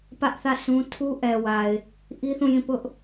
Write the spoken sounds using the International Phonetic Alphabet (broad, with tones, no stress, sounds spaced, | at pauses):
p ä˦ ʔ θ ä˦˨ s ũ˦ tʰ u˦ ʔ ɛ˨ w a˨ ɪ̯ | ʔ i˦ θ ũ˦˨ j ĩ˦˨ p ʊ˦ ʔ